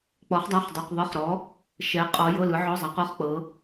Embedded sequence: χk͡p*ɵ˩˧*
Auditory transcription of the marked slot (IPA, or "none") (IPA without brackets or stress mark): ɤ˩˧